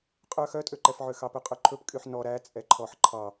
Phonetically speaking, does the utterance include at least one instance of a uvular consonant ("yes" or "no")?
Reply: yes